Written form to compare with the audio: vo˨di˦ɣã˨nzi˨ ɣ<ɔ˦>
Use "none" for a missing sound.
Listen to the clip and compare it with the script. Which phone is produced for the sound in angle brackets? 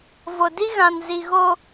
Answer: o˦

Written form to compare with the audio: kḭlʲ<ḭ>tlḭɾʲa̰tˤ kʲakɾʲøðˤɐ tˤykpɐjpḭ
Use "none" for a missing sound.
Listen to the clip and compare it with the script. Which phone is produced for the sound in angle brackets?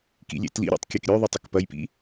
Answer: ḛ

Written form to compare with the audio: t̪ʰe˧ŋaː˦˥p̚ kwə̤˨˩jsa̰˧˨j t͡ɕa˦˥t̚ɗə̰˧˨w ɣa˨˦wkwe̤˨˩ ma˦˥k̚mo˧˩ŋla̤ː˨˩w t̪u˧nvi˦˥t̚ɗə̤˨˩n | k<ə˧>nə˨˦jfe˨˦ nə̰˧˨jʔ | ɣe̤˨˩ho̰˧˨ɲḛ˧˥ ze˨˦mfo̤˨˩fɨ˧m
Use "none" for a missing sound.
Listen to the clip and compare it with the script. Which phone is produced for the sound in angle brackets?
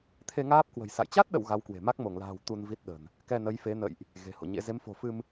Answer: ɛ˧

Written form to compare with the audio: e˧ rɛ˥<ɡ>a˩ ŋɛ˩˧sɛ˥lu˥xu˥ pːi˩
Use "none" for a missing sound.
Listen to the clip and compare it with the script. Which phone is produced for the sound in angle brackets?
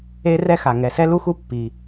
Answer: x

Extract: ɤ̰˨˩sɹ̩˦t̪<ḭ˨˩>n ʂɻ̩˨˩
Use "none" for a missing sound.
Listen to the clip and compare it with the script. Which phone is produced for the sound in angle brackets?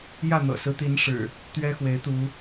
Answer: i˨˦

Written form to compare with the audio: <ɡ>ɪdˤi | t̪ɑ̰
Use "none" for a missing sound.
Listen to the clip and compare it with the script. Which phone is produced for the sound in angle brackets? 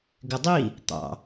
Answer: ɡ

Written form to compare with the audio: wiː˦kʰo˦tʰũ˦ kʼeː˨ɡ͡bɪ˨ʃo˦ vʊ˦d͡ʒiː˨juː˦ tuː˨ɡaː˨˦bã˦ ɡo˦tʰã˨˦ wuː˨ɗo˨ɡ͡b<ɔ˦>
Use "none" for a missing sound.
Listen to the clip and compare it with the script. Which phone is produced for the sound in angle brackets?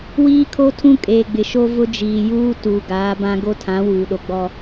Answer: ɔ˦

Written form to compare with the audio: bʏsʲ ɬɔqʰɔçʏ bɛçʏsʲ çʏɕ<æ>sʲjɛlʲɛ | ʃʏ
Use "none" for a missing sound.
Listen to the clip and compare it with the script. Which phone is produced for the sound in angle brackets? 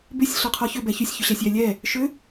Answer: æ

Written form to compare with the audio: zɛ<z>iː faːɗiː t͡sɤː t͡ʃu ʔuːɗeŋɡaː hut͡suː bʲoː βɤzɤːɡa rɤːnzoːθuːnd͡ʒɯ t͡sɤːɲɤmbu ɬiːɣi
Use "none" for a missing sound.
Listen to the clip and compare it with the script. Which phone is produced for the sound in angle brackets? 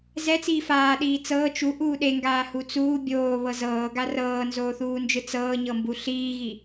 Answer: t͡s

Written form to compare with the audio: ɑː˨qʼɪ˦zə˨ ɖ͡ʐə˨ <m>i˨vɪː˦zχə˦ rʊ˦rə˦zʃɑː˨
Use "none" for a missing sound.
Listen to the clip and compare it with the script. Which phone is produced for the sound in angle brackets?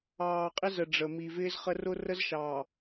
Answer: m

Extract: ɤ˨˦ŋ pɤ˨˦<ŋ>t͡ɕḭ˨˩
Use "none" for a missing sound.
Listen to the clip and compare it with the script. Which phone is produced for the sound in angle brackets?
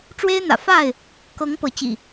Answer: none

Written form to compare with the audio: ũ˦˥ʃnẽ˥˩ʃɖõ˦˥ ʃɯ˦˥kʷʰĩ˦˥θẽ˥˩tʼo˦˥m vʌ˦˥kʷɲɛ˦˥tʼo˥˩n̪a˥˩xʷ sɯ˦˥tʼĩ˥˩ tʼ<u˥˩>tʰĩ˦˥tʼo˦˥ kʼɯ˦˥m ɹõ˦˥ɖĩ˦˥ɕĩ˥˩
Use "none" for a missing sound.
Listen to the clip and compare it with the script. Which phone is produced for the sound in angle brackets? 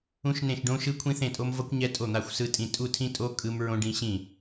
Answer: u˥˩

